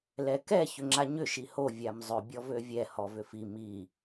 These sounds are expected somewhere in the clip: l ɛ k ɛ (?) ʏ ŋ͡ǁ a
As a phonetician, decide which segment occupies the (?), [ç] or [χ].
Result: ç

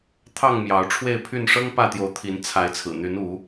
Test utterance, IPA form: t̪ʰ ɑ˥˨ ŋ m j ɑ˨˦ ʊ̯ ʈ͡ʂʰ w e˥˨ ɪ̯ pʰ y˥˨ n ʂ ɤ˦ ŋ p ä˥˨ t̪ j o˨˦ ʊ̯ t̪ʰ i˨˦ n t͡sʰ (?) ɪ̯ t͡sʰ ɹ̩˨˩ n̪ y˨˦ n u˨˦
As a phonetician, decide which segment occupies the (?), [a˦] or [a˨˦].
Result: a˨˦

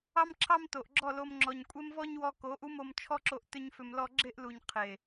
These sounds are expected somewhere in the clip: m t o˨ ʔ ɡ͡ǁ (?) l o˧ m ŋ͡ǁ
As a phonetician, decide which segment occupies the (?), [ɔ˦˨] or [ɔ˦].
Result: ɔ˦˨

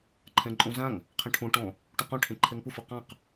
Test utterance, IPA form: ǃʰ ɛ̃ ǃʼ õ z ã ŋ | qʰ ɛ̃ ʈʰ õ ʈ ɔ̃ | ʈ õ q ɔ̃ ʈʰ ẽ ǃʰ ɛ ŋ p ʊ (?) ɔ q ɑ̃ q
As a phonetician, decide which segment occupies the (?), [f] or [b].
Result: f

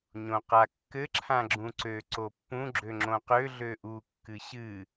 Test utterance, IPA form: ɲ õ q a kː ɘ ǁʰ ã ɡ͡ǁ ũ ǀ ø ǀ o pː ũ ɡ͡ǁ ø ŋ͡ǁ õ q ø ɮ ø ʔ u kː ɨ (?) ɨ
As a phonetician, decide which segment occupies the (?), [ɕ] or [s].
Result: ɕ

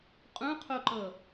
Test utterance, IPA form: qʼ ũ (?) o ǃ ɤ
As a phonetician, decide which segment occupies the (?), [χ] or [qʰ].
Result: qʰ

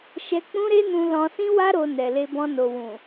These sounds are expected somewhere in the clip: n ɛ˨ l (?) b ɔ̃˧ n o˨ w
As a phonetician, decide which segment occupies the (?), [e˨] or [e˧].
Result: e˧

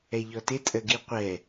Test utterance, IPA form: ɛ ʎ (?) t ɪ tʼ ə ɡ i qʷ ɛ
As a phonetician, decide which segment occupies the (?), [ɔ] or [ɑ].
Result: ɔ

